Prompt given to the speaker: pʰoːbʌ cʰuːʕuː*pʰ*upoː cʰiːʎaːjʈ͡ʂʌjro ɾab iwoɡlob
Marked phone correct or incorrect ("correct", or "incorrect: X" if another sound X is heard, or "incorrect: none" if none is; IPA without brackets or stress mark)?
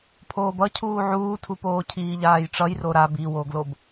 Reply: incorrect: tʰ